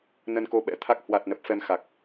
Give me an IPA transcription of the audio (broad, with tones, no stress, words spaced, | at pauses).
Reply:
nə˧nko˧ɓɛ̰˧˥t̪ʰa˦˥k̚ hwa˨˩t̚ nə˨˩p̚fɛ˧mxa˨˩k̚